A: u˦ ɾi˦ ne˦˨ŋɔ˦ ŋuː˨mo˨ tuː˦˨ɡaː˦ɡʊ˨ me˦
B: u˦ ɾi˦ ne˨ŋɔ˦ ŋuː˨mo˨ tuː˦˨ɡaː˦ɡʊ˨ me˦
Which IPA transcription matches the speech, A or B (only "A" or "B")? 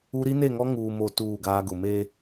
A